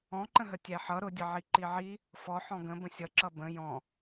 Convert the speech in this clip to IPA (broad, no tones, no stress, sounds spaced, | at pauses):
ɔ̃ ǃ ə̃ ɦ ə tʲ æ ħ ʌ ɾ ʊ dʲ ə ʕ i ǃ i ʕ i | f ɔ ħ ɔ̃ ɡ ə̃ b ə̃ sʲ ʌ ǁ ʌ b ə̃ j ɔ̃